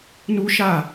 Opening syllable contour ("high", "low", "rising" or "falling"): high